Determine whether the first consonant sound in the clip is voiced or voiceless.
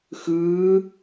voiceless